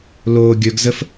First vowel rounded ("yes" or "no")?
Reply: yes